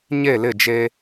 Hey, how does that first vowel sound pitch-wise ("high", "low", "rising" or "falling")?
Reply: falling